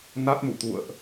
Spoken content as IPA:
na˦˥t̚mṵ˧˨t̪ṵ˧˨ə̯ʔ

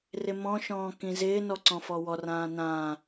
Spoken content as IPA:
rɪmɔ̃ʃɔ̃ː kĩzɪːnɔ ǀɔ̃fɔwɔrãː nãː

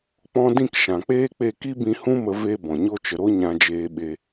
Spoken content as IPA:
k͡pɔ̃˦ dĩ˦˨kʃã˨k͡peː˦k͡pe˦˨ ki˦bĩ˧hũ˦mə˧ ve˧ bɔ̃˨ɲo˦t͡ʃə˧ ɾo˦ɲã˧d͡ʒeː˧ɓe˧

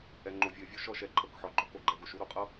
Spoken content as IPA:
ɛ˨ŋ͡ǃo˨vʲɤ˨ɪ̯vʲo˧ ʃɔ˧ʃɛ˨ǃʰɤ˨kħɔ˨ ɡ͡ǃɔ˧ko˨ɡ͡ǃɛ˨ɡo˨ʃ u˧ɾo˨qʼɤ˦

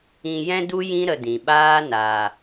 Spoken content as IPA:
ĩ˧jɛ̃˦du˦jĩ˦ ɾə˧dĩ˨ɓaː˦ na˨

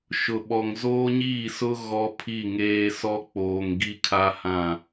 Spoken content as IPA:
ʃʊ˨ɓɔ˨ŋ zoː˦ɲiː˦˨sʊ˦ ɣɔ˦pʰi˦˨ŋeː˦ sɔ˦ k͡poː˨ŋɡi˦kʰa˦hã˦˨

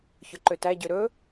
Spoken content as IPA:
çɵǃøtæ ɟøɾɵ

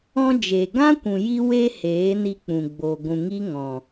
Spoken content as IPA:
ɔ̃˧d͡ʒeː˨ ɡã˦kʷũ˨ ji˧we˧ heː˨˦ni˧k͡pũ˨ ɡ͡bo˨ɡʷũ˨ŋi˦ ŋɔ̃˨

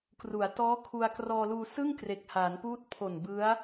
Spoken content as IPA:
kru˩˦a̯tɔː˦˥kʰu˧a̯ krɔː˧luː˧sɯ˥˩ŋ kre˨˩k̚haː˩˦npuː˦˥t̚ pʰo˨˩nbɯ˦˥a̯

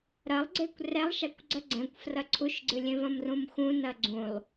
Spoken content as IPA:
ɾɐlˠɡ͡ǀekʷ rɛlˠʃakʷ ɡ͡ǀɐɡ͡ǀɛ̃kʷ frɐǀʰuʃɡ͡ǀɨlʲẽ vɐ̃mrũmxũnɐ ɡ͡ǀũlˠ

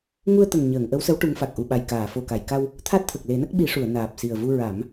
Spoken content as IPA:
ŋu˧ə̯t̪ə˨˩ŋɲəː˨˩˨ŋ ʔə˧˥wsə˧˥w ʈu˧˥ŋfa˨˩k̚ ʔu˨˩ɓa˨˩jkaː˨˩˨ fo˨˩ka˨˩˨jka˧w | t̪ʰa˦˥t̚t̪ʰə˨˩k̚le˨˩˦nə˦˥k̚ ɓi˨˩˦ʂu˨˩˨ə̯ naː˨˩p̚si˨˩ə̯vu˧ ɹa˨˩˦m

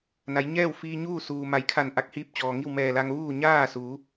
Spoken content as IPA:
na˩˧jɲɛː˥˨wfiː˧ ɲuː˥˨suː˩ ma˩˧jkʰa˧˩n ʔa˧˥k̚hiː˧p̚t͡ɕɔː˩ ŋi˥˨wmɛː˧˩la˧ŋ ʋuː˥˨ ɲaː˥˨su˩˧

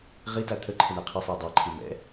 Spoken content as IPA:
ʁita t̪ʰəǃʰə ɳɜqʰisˤiɐ̯ dˤaǃʰi mɛ̰

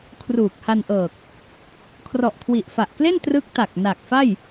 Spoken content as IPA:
kʰruː˨˩k̚ha˧nʔɤː˨˩k̚ | kʰrɔ˨˩ʔkʰwi˨˩ʔfa˨˩ʔkle˥˩n trɯ˦˥k̚ta˨˩k̚ na˨˩k̚ fa˥˩j

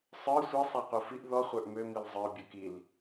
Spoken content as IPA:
sˤə˞ sʷɛ sˤaqʷə˞fiʔ ðɔ χʷə˞ʔmø milzˤə˞ bʲə˞kil

